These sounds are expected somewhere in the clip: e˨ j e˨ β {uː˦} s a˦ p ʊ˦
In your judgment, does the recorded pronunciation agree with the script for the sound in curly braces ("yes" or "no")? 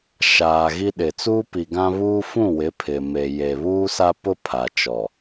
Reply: yes